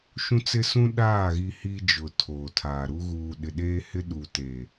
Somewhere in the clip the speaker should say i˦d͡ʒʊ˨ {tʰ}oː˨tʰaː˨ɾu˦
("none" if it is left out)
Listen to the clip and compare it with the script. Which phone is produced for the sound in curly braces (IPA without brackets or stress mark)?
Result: tʰ